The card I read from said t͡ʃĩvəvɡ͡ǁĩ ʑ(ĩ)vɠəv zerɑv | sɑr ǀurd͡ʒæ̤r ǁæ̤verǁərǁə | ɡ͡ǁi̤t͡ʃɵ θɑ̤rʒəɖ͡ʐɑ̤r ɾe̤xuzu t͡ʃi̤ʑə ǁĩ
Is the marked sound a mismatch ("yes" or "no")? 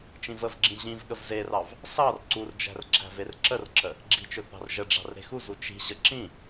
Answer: no